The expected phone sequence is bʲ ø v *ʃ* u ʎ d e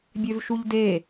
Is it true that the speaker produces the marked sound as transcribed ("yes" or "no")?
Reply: yes